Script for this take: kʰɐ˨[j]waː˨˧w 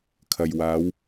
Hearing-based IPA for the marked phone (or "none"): j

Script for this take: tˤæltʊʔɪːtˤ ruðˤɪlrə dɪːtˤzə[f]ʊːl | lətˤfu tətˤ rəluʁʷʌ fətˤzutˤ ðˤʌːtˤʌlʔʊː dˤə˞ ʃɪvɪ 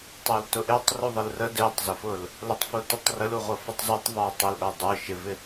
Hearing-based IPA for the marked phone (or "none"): f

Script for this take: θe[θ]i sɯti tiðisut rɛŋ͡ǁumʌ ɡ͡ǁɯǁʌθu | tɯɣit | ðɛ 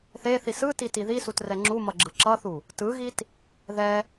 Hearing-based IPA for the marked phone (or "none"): θ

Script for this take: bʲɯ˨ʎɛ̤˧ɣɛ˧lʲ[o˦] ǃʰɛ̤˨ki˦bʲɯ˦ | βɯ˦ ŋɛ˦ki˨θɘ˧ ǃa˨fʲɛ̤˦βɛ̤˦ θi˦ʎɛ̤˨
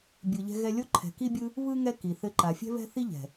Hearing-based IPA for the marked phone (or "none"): o˦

